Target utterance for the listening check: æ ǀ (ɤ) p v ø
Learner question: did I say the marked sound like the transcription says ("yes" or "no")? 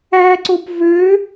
no